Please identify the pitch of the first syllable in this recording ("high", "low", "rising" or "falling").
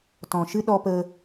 low